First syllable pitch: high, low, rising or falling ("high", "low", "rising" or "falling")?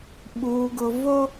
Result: low